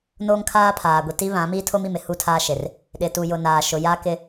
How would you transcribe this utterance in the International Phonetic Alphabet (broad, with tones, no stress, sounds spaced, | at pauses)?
n oː˦ ŋ kʰ aː˦ pʰ aː˨ ɡʷ i˨ t i˦ β ã˨˦ m i˦ tʰ o˦ m i˨ m ɪ˨ h u˦˨ tʰ aː˦ ʃ e˨ r | ɗ ɪ˨ t u˨ j ʊ˨ n aː˨ ʃ ʊ˨ j a˦ k ɪ˦